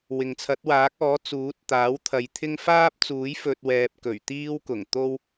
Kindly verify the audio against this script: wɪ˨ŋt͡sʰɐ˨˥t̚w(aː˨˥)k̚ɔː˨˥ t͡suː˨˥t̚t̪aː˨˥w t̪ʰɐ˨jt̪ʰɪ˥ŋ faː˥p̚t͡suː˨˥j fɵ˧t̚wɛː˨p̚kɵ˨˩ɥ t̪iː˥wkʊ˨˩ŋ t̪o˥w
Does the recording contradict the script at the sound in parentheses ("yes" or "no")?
no